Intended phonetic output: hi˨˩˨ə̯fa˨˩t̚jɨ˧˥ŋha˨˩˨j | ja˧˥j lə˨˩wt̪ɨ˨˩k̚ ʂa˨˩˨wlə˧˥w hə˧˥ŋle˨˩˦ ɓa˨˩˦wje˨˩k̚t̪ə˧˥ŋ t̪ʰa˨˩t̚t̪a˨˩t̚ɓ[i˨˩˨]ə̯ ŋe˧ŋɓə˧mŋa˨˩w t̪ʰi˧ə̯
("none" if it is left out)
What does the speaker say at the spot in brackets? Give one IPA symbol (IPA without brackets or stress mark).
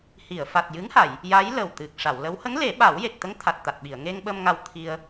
i˨˩˨